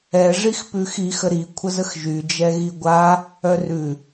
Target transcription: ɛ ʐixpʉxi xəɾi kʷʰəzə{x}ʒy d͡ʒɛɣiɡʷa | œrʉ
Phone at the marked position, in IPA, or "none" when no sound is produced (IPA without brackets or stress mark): x